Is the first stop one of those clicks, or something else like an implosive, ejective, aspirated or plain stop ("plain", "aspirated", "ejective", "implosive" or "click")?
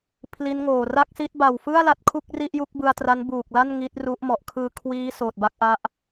aspirated